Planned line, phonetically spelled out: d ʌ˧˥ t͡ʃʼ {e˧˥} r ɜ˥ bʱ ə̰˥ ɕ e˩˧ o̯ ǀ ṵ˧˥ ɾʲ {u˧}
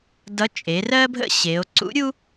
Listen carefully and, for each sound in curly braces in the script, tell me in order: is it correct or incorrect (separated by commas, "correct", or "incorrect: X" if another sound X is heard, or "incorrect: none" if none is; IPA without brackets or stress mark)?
incorrect: e˩˧, incorrect: u˥